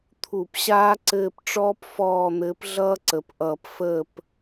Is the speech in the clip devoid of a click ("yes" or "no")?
no